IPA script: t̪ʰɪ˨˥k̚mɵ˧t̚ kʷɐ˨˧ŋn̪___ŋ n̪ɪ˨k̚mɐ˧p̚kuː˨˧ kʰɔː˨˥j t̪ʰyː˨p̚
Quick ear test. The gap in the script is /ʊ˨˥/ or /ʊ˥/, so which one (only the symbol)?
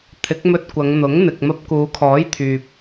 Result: ʊ˨˥